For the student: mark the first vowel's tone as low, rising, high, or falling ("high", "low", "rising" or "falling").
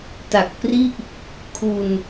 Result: low